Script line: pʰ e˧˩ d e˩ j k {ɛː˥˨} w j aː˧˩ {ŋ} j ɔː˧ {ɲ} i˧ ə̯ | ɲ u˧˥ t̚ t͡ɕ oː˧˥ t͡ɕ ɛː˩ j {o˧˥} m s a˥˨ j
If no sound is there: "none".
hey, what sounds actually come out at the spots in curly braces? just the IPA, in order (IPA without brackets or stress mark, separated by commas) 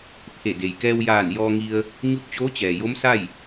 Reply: ɛː˧, n, ŋ, o˧˥